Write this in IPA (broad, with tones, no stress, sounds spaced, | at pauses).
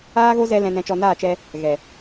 aː˦ ɣ o˦ z ɛ˧ l ɛ̃˨ n ɛ̃˨ t͡ʃ ɔ˨ n aː˦˨ t͡ʃ ɛ˧ | ɣ ɛ˨